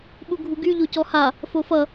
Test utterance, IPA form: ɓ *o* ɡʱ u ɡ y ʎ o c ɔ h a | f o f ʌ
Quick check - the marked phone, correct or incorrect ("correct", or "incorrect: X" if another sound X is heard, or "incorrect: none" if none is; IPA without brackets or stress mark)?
incorrect: u